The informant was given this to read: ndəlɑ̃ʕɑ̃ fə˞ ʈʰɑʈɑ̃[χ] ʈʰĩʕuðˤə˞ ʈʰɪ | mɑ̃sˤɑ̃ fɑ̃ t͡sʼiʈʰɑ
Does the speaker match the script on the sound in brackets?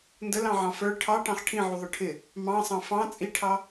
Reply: yes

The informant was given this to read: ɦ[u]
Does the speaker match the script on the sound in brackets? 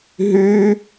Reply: no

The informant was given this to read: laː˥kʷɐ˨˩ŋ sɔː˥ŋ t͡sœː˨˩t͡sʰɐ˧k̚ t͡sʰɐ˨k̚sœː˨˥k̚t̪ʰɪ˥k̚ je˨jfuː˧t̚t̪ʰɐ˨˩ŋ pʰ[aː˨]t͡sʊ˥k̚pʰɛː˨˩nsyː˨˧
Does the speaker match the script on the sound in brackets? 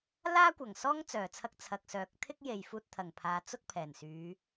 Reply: no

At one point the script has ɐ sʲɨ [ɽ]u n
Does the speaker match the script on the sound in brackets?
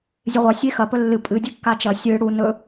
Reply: yes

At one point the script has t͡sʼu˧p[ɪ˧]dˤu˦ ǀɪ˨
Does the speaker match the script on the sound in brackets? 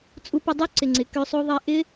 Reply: yes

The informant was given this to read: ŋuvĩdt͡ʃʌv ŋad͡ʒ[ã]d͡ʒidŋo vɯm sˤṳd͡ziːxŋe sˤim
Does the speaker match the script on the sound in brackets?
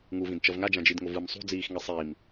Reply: yes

